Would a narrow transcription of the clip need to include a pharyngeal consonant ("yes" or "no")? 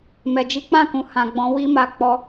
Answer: no